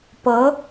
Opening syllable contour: rising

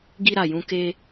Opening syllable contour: high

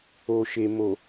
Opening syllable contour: low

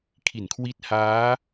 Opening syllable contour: low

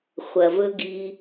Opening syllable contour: low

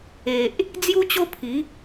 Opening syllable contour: low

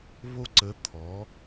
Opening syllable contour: high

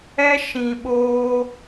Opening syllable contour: high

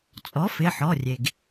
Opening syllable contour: rising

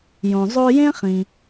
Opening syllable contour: low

